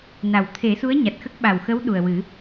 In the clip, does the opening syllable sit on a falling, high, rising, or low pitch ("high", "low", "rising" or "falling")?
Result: low